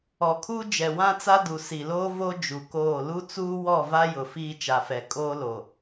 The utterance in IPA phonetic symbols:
ɔ˨ kʰ uː˦ d͡ʒ ɛ˨ w ã˦ t͡s a˦ d u˨ s i˨ l oː˦ v o˦ d͡ʒ u˨ k oː˦˨ l u˦ t͡s uː˦ w ɔ˦˨ v a˦ j ʊ˨ f iː˦ t͡ʃ a˨ f ɛ˨ kʼ oː˦ l o˨

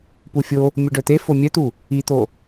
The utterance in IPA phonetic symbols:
p u fʲ o | mʲ u ɖ œ t̪ e f o mʲ œ t̪ u | i t̪ o

